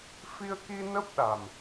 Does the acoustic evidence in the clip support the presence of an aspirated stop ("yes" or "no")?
no